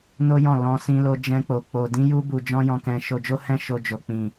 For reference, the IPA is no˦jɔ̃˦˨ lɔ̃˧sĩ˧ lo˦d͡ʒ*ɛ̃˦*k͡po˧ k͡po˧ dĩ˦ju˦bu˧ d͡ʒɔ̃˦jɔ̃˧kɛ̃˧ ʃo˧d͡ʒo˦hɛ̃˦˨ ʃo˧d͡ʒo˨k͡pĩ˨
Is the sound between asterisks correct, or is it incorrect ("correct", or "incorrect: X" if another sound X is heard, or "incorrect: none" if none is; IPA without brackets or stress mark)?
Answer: correct